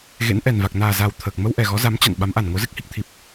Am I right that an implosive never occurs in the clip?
no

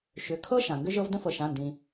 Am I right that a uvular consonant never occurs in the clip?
yes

